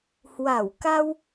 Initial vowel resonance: oral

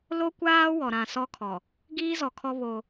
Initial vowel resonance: oral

